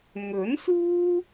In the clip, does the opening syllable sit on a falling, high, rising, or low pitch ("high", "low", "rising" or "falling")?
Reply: rising